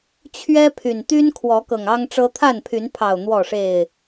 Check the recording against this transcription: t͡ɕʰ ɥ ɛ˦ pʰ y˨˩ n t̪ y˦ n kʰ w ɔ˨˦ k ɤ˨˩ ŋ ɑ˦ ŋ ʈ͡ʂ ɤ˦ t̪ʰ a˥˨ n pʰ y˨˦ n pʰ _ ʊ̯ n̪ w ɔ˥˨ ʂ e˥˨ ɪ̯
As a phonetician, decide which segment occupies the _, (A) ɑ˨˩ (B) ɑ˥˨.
A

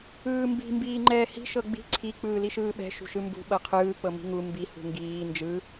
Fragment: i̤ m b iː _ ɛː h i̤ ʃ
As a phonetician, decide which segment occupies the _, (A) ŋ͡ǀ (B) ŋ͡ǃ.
B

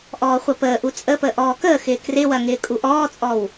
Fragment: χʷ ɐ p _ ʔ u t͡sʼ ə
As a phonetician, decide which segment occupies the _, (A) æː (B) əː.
B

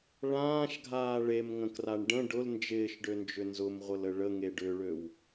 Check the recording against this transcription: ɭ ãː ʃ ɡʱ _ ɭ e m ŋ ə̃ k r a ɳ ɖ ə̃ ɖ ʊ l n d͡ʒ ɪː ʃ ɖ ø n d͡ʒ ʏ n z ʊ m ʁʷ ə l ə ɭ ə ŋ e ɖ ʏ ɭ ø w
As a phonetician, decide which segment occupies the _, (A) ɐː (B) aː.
B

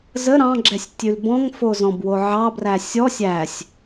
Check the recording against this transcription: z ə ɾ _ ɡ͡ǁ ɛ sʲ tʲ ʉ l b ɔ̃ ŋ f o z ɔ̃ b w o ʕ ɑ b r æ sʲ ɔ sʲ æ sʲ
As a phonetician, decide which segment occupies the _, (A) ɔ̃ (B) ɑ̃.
B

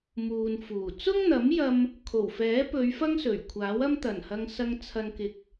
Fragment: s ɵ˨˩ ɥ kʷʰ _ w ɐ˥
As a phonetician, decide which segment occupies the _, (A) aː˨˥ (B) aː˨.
A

